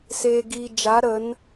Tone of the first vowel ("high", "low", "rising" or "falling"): low